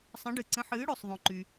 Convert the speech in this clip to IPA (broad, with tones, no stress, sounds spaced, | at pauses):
sˤ ə̃˩˥ ɖ ɨ˩ ǀ ə̃˩˥ ħ ɨː˩˥ ɽ o˩ sˤ ðˤ õ˩ ǃ y˩